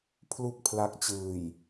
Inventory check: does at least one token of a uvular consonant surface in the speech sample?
no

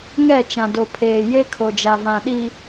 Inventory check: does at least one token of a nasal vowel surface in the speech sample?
yes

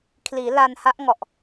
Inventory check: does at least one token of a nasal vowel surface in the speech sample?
no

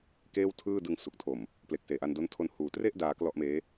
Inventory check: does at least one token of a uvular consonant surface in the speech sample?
no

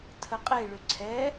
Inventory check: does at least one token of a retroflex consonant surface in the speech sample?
yes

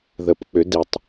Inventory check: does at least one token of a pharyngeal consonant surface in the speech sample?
no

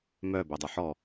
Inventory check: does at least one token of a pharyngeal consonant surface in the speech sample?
yes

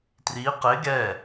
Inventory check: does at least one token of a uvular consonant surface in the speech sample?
yes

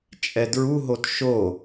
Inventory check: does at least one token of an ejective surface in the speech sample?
yes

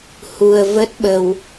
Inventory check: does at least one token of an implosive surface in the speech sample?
yes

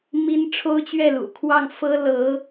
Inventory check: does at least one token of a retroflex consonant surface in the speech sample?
yes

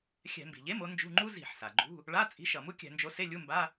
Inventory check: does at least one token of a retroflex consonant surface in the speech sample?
yes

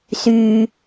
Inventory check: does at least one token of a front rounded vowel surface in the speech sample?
yes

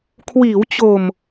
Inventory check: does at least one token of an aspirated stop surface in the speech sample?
yes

